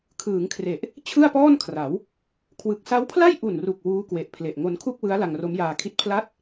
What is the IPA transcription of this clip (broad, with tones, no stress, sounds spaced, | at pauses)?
kʰ ɯː˩˦ ŋ kʰ r e˨˩ ʔ | t͡ɕʰ ɯ˥˩ a̯ p ɔː˥˩ n kʰ r a˩˦ w | kʰ w ɯ˨˩ k̚ s a˦˥ w pʰ l a˥˩ j ʔ u˨˩ n r u˨˩ k̚ w uː˦˥ k w e˨˩ ʔ pʰ l e˨˩ ʔ ŋ o˧ n kʰ u˥˩ k̚ w ɯ˦˥ a̯ l a˧ ŋ r o˦˥ m j aː˧ kʰ i˥˩ t̚ pʰ l a˥˩ t̚